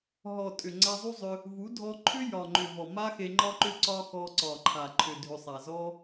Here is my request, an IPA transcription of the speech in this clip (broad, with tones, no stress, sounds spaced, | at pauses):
ɦ ɔ˨ tʼ ʏ˨ ŋ͡ǀ a˧ zˤ u˦ zˤ ʏ˧ | v u˨˦ dʱ ɔ˧ ǃʰ ʏ˦ j ɒ˨ ŋ͡ǃ ʏ˨ v ɔ˨ m a˦ x e˧ ŋ͡ǃ ɒ˧ ǃ ʏ˧ ǀ ɒ˧ x ɔ˧ ǀ ɒ˨ ǃʰ a˨ ǃʰ ʏ˨ dʱ ʏ˨ sˤ a˨ z ɔ˦